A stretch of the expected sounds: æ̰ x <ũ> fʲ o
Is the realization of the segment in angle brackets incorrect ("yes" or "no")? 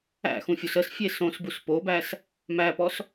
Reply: no